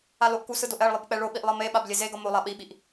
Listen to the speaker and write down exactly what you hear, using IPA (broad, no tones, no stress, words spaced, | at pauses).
aloʔkusɯ doʔɛɭlˠɯb k͡pɛɭoɓiʔ lˠʌmeɓab lʲezeɡʌ molˠa ɓiɓiʔ